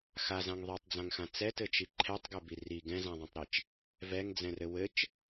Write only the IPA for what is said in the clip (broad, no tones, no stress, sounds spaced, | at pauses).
x a z ã ŋ ðˤ ɛ tˤ d͡z ã ŋ x ã t͡s ɛ t ɘ t͡ʃ i ǃʰ ɛ tˤ ɡ ɛ b i r i ɡ ɛ̃ z ã ðˤ ã tˤ ɾ i t͡ʃ | v ɛ ŋ d͡z ɛ̃ r ɘ w ɘ t͡ʃ